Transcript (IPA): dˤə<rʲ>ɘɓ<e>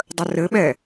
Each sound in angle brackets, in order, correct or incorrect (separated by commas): incorrect, incorrect